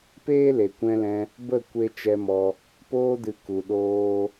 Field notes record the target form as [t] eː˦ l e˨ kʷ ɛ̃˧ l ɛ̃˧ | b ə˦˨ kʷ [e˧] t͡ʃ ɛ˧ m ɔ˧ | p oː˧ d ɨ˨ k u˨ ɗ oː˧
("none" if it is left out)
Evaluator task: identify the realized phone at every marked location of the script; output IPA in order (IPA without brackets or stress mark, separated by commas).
p, e˧